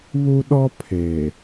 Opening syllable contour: high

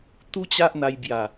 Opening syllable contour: high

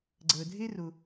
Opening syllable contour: low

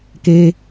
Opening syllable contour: high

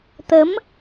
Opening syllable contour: rising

